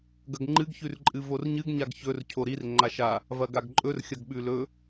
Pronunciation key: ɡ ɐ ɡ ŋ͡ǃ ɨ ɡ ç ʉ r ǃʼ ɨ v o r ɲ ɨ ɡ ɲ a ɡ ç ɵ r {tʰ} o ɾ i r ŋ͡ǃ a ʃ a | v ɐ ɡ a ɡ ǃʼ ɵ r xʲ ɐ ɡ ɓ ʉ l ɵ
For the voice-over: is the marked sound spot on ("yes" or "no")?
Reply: no